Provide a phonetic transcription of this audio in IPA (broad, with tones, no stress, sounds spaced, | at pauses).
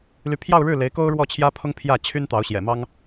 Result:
l y˧˥ pʰ j ɑ˥˧ ʊ̯ ɻ ɻ̩˥˩ l e˧˥ ɪ̯ k o˥ ʊ̯ ɻ w ɔ˥˩ t͡ɕʰ j ä˥ pʰ ʊ˥ ŋ pʰ j ä˥˩ t͡ɕʰ y˥ n t̪ ɑ˧˥ ʊ̯ ɕ j ɛ̰˨˩ m ɑ˥ ŋ